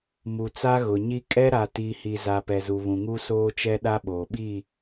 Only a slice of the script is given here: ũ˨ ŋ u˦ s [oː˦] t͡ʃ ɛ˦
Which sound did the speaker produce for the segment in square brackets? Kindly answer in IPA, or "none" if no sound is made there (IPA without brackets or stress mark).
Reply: oː˦